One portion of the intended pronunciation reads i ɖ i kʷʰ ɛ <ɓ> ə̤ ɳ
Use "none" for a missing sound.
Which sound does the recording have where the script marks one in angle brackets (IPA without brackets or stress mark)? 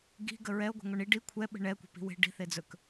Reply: ɓ